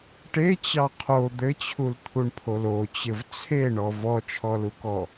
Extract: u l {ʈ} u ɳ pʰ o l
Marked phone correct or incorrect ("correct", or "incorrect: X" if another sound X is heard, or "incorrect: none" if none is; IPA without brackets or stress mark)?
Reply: incorrect: t̪ʰ